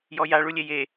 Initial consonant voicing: voiced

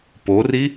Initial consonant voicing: voiceless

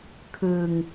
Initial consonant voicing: voiceless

